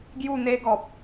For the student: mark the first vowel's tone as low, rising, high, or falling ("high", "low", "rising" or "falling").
falling